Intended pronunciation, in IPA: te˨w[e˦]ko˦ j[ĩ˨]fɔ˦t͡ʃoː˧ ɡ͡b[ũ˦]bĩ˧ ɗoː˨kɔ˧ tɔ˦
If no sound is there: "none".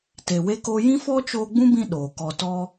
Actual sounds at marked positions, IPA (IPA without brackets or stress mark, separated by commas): e˦, ĩ˦, ũ˦